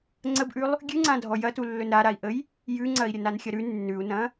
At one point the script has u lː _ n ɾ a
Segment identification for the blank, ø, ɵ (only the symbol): ɵ